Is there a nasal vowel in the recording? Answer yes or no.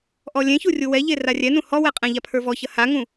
yes